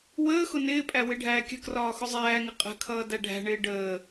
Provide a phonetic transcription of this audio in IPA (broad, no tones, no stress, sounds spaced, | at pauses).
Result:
w əː x ʊ n ɪː pʼ æ w ɪ ɖʱ æː kʲ ə̤ k r ɒː x ʊ zˤ æː ŋ ɪ qʼ ə̤ kʰ ʌː d æ ɖʱ æ̤ ɳ ɪː ɖ əː